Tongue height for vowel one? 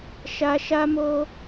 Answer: low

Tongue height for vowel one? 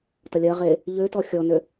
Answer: low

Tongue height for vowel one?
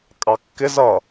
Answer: low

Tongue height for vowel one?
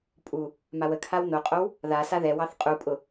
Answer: high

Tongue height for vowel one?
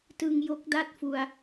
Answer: high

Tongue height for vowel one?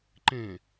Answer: mid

